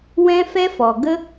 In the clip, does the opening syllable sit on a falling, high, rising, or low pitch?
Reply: high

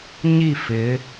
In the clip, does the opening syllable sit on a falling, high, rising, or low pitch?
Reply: falling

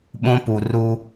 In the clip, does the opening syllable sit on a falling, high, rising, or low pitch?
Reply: high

